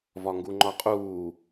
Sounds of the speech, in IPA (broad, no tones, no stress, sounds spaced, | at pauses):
v ɒ ŋ ɡ u ŋ͡ǃ ɒ qʼ uː